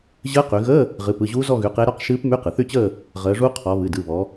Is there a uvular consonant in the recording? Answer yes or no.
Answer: yes